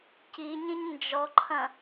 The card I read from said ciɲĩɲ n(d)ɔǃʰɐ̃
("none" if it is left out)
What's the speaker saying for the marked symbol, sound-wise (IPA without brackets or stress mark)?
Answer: d͡ʒ